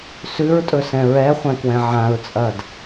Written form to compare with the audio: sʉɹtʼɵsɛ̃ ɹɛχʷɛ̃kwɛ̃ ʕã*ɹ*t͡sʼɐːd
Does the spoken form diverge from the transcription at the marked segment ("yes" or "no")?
no